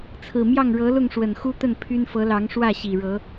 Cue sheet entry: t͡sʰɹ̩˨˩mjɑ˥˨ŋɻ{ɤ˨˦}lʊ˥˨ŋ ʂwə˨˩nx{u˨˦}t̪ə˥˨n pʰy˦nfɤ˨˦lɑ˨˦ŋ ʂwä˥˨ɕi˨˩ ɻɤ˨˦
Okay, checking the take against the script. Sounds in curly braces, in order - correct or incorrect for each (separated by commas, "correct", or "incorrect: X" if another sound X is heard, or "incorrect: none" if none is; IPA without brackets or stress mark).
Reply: correct, incorrect: u˦